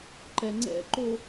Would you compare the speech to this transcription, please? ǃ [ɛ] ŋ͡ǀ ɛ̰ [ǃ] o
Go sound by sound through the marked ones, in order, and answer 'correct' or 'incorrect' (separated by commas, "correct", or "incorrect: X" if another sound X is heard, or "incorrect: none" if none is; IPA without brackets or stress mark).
correct, correct